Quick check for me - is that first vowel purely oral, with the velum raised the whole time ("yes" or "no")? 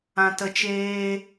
no